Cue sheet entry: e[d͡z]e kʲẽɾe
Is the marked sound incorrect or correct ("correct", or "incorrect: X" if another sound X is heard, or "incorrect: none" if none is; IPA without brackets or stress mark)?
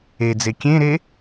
correct